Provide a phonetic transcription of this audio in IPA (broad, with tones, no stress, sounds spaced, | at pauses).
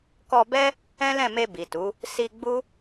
k ɔ˧ b ɛ˦ | ɛ̃˦ l ɛ̃˦˨ m e˧ b i˨ t u˨˦ | s i˧ ɡ͡b u˦